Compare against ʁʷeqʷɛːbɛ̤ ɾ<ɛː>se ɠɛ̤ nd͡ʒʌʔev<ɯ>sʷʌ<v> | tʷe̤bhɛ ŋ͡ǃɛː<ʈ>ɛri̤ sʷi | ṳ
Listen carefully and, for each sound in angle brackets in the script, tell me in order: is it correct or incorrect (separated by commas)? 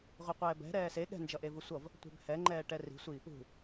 correct, correct, correct, correct